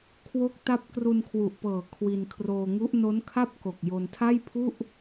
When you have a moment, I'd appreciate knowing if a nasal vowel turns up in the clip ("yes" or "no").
no